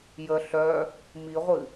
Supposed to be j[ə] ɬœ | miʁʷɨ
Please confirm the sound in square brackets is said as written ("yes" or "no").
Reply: yes